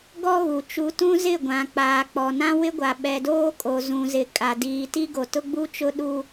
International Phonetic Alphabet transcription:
ɡɔ˦ ɣu˨t͡ʃu˨˦tũ˦ zɪ˦˨ɡʷã˨ k͡paː˨k͡pɔ˨ nã˦wɪ˦ɡʷa˨ ɓɛ˨doː˦kʼo˨ zũ˨zɪ˨ kʼa˨diː˨ti˦ ɡo˨tʊ˦ɡ͡bu˦t͡ʃʊ˦ ɗu˦

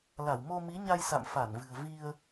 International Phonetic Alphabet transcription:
la˧˩wmo˧mi˨˦ɲa˧j sa̰˧˨mfa˧˩nvɨ̤˨˩ə̯ vi˧ə̯

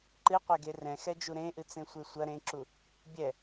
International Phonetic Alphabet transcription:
ǃɨqʷɛɡe rɛ̃xɛd͡ʒu ɾẽʔɨt͡sẽsʷe sʷɐ ɾẽǁu | bʲɛ

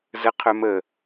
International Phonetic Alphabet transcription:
zə qʰœmə

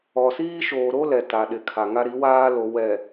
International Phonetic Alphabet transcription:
ɔ˨siː˦ ʃoː˨ɾo˦ lɛ˨ ta˨ɗɪ˨kʰa˨ ŋa˦ɾi˨˦waː˦lo˨ wɛ˨

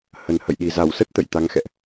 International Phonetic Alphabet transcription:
hə˨˩nhə̰˧˨jɗi˨˩ za˧˩wsə˦˥t̚ t̪ə̰˧˨jt̪a˨˦ŋxɛ̰˧˨ʔ

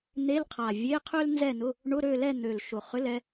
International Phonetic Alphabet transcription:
n̪e˧˥˧lqʰa˨˩ vʲe˧˥˧qʰø˥l nzɛ˥˨nʊ˧˥˧ | ɳʊ˧˥˧ɾø˥˨lɛ˥˨ n̪ø˨˩l ʃʊ˨˩χʏ˧˥˧l ɛ˥

